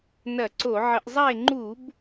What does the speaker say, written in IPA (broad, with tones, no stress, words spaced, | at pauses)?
nɐ˧˩˧ǀo˧˩˧ʕə˧˩˧ʔzˤa˥˨e̯ ŋ͡ǃu˧˩˧b